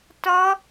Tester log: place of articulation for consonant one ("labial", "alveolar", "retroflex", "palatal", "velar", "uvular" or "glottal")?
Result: alveolar